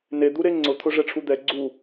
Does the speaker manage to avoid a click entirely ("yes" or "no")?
no